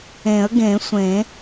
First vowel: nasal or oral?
nasal